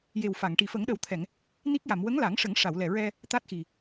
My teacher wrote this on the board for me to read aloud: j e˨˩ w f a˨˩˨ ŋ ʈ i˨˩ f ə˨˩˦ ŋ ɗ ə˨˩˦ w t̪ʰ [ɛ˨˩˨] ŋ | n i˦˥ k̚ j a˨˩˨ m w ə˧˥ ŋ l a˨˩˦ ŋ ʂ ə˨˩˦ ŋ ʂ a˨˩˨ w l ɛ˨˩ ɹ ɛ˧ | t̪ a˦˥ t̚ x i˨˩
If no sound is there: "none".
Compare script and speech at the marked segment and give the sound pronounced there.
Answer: ɛ˨˩˨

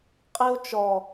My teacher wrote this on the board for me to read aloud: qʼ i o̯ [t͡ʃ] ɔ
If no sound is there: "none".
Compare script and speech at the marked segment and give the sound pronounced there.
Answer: t͡ʃ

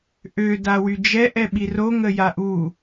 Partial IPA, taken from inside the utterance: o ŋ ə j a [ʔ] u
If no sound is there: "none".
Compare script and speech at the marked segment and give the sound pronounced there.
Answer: ʔ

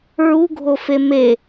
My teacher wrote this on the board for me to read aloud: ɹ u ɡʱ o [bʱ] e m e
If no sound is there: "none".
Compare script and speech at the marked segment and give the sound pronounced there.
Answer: f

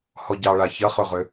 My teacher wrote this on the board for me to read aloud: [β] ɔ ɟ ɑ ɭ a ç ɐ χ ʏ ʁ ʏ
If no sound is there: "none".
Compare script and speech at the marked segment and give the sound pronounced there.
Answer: h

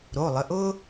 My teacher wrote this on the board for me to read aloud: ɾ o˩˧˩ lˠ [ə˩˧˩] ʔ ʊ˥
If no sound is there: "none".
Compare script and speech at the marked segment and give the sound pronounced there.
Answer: ə˩˧˩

